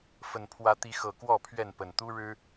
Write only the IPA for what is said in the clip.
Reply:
fə˨˩npʰwä˨˦ t̪i˨˦xɤ˨˩kwɔ˥˨ pʰɥɛ˥˨npə˨˩n t̪u˦ɻɻ̩˦

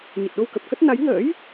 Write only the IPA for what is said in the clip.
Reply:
ɲə˨˩t̚ɗo˧wkə˨˩p̚kə˦˥t̚ na˨˦jŋə̰ː˧˥j

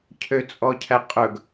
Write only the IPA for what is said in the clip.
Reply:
cʰøt͡sʼɔcʰæqʼɵɡ

